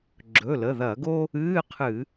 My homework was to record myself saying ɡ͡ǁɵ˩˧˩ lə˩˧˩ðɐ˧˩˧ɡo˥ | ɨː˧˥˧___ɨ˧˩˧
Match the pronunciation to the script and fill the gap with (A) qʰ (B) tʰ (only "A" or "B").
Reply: A